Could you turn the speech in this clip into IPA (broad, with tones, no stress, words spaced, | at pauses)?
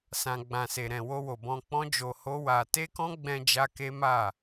sã˨ɡ͡bã˨se˨ ɾɛ̃˨wo˧wo˨bɔ̃˧ k͡pɔ̃˦d͡ʒo˧ho˦ wa˧ te˦kɔ̃˦ɡ͡bɛ̃˧ d͡ʒa˦ke˦ma˦˨